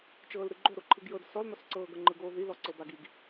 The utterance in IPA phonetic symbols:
t͡ʃ ɤː l ɾ ɯ ɡ͡ǃ o ɾ o ǃʰ ɯ ɡ j ɤ d s ɔ l n̪ ɔ s ǀ ɤː ɡ ɤ ŋ͡ǃ ɯ ɡ oː ð i l ɔ ǀ ɤ b a ɡ i ɡ

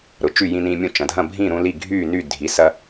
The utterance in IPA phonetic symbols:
ɾ ʊ˩˧˩ t͡ʃ y˥˨ j ĩ˦ n ĩː˦ mʲ ũ˥˨ t͡ʃ ɐ̃˩˧˩ dʱ ɐ̃˥˨ bʱ ĩː˥˨ ɾ ũ˦ l i˥˨ ɡʱ yː˥˨ n y˥˨ dʱ i˩˧˩ s ɐ˦

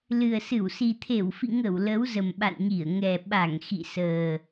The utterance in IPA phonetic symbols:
l ɨ˨˩ ə̯ s ɨ˧˩ w s i˨˩ t̪ʰ e˧˩ w f ḭ˧˨ ŋ ə˧˩ w l ə˨˦ w z ə˨˩ m ɓ a̰˧˨ n ɲ i˧˩ ə̯ ŋ ɛ˨˩ ɓ a˧˩ ŋ x ḭ˧˨ s əː˨˩

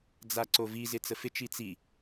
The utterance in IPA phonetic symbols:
d͡z a ǀ o v i z ɪ t͡s ə f ɪ t͡ʃ i t͡s i

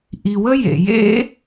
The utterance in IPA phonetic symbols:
ʔ i˨ w ə˦ j ḛ˨ j ḛ˦

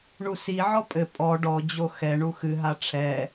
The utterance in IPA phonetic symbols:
ɳ u s i ʕ ɔ pʼ ɘ pʼ ɔ ɖ ɔ d͡ʑ o x ɛ ɳ u x ɨ ɦ a ʈ͡ʂʰ ɛ

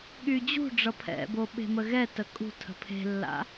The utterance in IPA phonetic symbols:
ɠ y d͡ʑ ṳ ɖ͡ʐ ʌ pʰ ɛ̰ b o ɓ e̤ m ə ɣ ɛ t ə kʼ ṳ tʰ ə̤ pʰ e̤ lː a̰

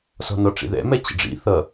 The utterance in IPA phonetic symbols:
s ɔ̤ n ɔ ʈ͡ʂ ḭ ð ɛ̰ m ɛ t͡ɕ ə̰ ɖ͡ʐ ḭ θ ʌ

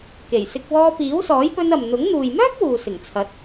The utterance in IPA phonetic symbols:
k e˨˩ j s ɪ˧ k̚ w ɔː˧ p iː˨˥ w s ɔː˨˥ j p ɵ˧ n ɐ˨ m n̪ ʊ˨˥ ŋ n̪ uː˨ j m œː˥ k̚ w uː˨ s ɪ˨˩ ŋ t͡sʰ ɐ˨˥ t̚

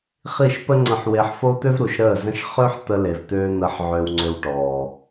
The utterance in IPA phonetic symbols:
χ i˦˨ ʃ p ə˦ ŋ͡ǀ ə̃˧ ħ w e˧ ħ f o˦ t̪ ø˦ v ɾ u˨ ʃ ɾ əː˦˨ z ə̃˦ ʃ χ ø˦ ħ t̪ ə˧ l e˨ v t̪ øː˧ n̪ əː˨ ħ ʕ øː˨ w ŋ͡ǀ ø˨ w ʈ ɔː˨

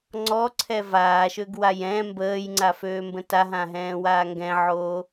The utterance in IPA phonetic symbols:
ŋ͡ǀ ɔ ǀʰ ɛ v aː ʃ ø ɡ w a j ɛ̃ m b əː j ŋ͡ǀ a f øː m b ə̃ t a ɦ ã ɦ ɛ̃ː w aː ŋ ɡ ɛ̃ ʕ oː

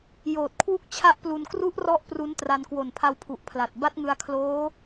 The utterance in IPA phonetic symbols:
j oː˨˩ t̚ kʰ w u˦˥ k̚ t͡ɕʰ a˦˥ ʔ p l u˧ n k r u˦˥ ʔ r ɔ˦˥ ʔ p r u˦˥ n t r a˧ n k w o˨˩ n pʰ a˧ w pʰ u˨˩ ʔ pʰ l a˨˩ t̚ b a˦˥ t̚ ŋ ɯ˧ a̯ kʰ l oː˦˥

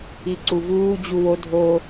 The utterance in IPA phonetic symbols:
i ǀ u v uː d͡ʑ u w o dʱ o

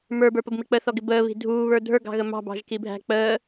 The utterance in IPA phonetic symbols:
m ə˞ b ə˞ p ə b m i k͡p ə θ ɔ ɡ ɪ b əː β i̤ dʱ uː β ə˞ dʱ ə˞ ɡ ɑ̤ ɣ ə m ɑ̤ b ɑ̤ ʒ k i bʱ æ̤ k͡p əː

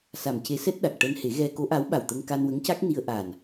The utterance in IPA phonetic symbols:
s a˨˩ m c e˧˥ s ɛ˦˥ t̚ ɗ a˨˩ k̚ ʈ əː˧ n h e˨˩˦ ɣ ɛ˧ k o˧˥ ʔ a˧˥ w ɓ a˨˩ w t̪ ə˧ ŋ k a˧ n w ə˧˥ ŋ c a˦˥ k̚ n i˧ ə̯ ʔ a˨˩ n

